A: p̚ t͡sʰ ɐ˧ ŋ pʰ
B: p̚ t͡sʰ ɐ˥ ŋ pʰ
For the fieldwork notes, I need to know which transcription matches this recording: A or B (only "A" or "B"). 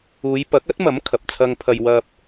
A